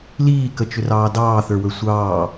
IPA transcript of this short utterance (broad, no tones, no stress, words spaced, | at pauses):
liːkət͡ʃʏrɑː dɑːθə˞wə˞ sʷɑː